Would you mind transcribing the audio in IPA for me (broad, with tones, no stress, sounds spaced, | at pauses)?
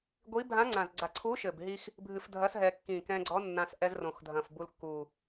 ɡʷ i˧˥ bʱ ã˧˥ ŋ͡ǀ ã˨˩ z ɡ͡ǀ a˨˩ ǀʰ u˧˥ ʃ ɘ˨˩ b ɦ i˧ x | bʱ ɨ˧ f dʱ ɐ˧˥ s ɦ ɛ˧ kː ĩ˨˩ k ɛ̃˧ ɡ͡ǀ ɔ˧˥ nː ã˧ s ʔ ɛ˧ z r õ˨˩ x dʱ ɐ̃˨˩ f b u˧ l kː u˨˩